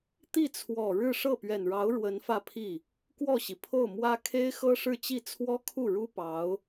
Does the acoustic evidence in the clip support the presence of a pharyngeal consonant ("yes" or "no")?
no